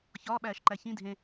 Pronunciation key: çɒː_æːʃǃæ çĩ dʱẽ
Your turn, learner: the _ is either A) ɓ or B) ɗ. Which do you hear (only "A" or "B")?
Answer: A